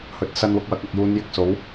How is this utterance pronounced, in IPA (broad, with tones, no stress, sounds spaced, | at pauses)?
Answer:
h ɵ˨ t̚ s ɐ˧ n w ʊ˧ k̚ w ɐ˨˥ k̚ ɐ˨ k̚ j uː˨˧ n j ɪ˧ k̚ s o˨˥ w